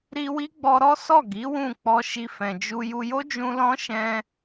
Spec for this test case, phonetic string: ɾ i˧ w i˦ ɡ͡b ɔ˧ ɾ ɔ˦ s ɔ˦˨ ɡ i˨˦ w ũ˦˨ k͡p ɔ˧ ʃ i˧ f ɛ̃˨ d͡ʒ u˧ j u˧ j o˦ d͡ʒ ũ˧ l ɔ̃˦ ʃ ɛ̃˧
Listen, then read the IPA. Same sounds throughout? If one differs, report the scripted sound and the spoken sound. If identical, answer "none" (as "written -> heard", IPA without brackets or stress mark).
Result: none